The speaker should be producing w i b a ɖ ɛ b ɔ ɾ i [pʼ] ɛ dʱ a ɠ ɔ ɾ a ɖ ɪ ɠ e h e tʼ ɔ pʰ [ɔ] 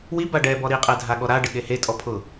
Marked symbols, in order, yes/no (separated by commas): no, no